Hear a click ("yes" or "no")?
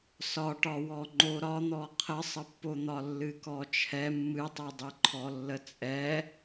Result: yes